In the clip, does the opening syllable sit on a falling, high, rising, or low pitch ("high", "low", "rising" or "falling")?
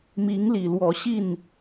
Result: rising